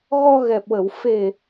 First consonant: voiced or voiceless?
voiced